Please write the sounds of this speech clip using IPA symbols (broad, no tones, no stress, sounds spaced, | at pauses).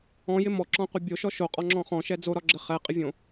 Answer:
ɔ̃ j ɪ m ɔ ǁ ɔ̃ qʷ ɘ bʲ o ʃ ɔ ʃ o qʼ ɔ ŋ͡ǁ ɔ̃ χ ɔ̃ ʃ ɛ d͡z o ɾ ɒ ɡ͡ǁ ɘ χ ɛ qʼ ɪ vʲ õ